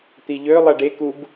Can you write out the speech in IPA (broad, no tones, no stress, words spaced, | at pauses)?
t̪iʎø lˠɛɖe kub